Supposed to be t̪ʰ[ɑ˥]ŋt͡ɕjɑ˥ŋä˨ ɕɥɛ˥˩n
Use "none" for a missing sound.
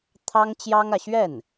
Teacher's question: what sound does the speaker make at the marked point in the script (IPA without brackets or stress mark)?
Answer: ɑ˥